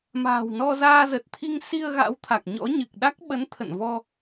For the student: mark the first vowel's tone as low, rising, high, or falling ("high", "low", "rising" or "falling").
low